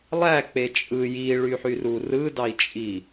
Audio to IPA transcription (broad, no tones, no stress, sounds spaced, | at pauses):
lˠ æ k͡p e t͡ʃʼ ɯ j i ɭ y ħ y r u r ɯ d ɑ i̯ t͡ʃʼ i